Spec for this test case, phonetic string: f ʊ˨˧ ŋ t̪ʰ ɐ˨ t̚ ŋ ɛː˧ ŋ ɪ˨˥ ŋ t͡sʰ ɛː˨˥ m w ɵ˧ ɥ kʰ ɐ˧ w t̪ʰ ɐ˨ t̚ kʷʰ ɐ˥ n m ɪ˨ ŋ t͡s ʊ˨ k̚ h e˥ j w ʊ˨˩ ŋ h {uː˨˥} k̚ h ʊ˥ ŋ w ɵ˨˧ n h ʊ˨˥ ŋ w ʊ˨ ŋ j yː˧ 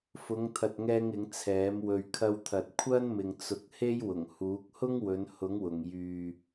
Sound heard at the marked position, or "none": uː˨˥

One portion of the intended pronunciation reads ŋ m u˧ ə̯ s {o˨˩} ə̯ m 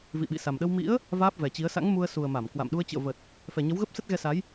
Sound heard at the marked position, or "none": u˨˩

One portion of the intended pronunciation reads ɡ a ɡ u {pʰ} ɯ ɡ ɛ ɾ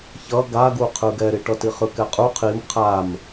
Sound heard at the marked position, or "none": qʰ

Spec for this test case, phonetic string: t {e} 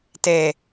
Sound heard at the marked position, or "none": e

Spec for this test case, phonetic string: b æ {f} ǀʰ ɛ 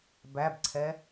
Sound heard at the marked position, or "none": b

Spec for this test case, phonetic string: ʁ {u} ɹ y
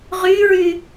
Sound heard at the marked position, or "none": y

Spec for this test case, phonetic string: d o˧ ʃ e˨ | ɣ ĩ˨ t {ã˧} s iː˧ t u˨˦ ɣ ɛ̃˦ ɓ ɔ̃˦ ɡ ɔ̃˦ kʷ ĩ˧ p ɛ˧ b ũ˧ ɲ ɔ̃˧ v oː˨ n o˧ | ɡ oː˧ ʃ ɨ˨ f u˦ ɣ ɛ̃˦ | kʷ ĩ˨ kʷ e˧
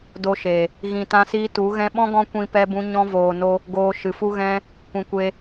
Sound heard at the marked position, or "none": ã˧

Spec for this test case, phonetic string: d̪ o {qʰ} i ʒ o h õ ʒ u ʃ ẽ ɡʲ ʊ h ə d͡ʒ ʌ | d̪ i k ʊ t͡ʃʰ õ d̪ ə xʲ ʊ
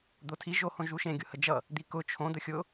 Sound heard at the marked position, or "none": tʰ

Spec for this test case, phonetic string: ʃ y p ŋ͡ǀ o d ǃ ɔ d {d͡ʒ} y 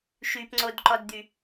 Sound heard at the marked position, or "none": d̪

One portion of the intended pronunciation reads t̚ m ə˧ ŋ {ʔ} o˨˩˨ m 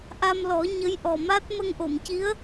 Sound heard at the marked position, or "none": ʔ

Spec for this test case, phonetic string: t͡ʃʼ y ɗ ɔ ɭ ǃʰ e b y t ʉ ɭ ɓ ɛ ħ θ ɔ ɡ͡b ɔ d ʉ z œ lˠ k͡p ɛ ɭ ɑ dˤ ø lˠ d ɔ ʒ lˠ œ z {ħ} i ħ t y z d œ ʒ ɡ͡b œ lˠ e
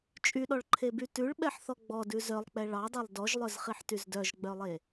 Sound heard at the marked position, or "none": χ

